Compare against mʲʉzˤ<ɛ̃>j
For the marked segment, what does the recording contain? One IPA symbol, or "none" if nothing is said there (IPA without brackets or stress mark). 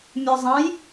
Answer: ɛ̃